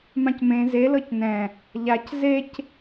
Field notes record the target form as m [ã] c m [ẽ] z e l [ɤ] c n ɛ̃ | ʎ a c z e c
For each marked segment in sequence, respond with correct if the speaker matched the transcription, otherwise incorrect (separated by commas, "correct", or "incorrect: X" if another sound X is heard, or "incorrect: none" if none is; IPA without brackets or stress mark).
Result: correct, correct, correct